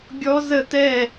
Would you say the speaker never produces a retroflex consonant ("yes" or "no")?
yes